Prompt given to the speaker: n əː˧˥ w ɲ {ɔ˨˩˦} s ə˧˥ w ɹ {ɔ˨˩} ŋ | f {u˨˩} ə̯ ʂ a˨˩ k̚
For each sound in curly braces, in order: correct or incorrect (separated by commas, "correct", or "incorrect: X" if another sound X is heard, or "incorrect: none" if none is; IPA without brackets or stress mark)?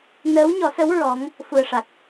correct, incorrect: ɔ˧˥, correct